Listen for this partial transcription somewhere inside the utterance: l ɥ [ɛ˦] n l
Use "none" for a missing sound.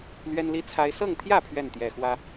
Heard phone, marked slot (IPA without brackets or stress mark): ɛ˦